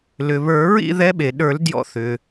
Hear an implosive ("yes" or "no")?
yes